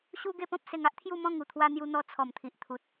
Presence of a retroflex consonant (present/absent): absent